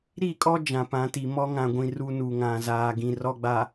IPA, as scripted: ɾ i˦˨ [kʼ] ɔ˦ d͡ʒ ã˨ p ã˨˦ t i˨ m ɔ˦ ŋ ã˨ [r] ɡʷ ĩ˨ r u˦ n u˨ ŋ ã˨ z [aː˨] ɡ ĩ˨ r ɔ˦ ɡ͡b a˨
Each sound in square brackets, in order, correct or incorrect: correct, incorrect: none, correct

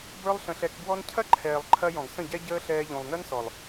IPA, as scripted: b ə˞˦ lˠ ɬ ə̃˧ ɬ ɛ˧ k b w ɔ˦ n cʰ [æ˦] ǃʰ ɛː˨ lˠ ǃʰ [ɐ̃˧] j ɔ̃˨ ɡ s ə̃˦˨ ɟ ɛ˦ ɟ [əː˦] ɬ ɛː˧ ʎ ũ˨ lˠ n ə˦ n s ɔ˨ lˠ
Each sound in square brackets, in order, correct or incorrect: incorrect: ɐ˦, incorrect: ɐ˧, correct

